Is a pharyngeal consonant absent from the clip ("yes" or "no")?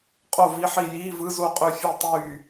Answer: no